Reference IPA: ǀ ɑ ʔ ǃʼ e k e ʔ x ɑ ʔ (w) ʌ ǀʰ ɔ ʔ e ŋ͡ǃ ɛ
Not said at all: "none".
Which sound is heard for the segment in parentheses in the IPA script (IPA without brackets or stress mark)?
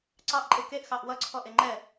w